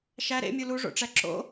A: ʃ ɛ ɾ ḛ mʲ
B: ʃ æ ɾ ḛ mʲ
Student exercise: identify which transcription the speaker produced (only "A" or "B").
B